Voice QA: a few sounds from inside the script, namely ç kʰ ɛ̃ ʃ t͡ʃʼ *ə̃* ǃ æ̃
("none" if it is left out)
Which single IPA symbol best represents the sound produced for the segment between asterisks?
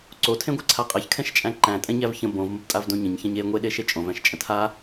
æ̃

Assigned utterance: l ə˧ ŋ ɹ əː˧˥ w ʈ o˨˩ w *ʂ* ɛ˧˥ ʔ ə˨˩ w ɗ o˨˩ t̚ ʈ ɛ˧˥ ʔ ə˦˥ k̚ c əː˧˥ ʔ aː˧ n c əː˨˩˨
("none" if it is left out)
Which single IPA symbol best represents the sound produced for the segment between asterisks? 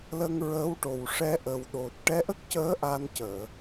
ʂ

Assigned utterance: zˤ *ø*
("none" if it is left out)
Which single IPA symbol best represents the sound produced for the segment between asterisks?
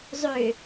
ø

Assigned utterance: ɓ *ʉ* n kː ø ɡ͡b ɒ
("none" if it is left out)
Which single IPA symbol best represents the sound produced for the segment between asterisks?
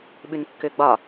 ʉ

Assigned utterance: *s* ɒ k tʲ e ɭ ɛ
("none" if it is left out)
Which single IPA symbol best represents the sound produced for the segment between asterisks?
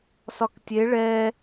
s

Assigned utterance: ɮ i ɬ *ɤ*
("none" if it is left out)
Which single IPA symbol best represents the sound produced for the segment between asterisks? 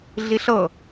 ɤ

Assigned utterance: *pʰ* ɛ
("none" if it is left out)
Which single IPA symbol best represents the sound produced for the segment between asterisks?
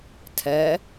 tʰ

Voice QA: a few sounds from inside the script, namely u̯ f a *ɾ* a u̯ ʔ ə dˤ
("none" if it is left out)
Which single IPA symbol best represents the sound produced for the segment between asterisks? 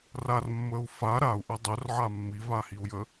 ɾ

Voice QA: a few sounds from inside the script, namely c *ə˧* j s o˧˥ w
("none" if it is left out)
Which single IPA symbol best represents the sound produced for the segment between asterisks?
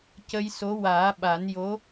ə˧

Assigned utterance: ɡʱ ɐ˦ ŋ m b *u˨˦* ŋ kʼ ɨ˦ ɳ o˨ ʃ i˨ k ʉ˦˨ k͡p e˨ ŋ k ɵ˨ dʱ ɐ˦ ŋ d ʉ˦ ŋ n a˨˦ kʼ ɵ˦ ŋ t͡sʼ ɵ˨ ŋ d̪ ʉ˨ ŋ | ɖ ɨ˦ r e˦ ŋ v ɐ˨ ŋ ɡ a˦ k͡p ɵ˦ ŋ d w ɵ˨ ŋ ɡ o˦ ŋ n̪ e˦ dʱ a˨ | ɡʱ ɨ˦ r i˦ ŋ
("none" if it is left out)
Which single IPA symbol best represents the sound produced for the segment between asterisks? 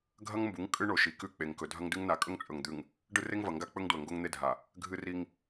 u˨˦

